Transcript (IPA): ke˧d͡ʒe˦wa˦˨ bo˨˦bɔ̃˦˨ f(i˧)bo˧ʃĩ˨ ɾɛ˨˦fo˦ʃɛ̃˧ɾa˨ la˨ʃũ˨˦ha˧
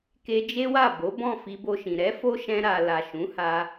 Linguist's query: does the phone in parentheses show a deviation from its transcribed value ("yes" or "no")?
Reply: no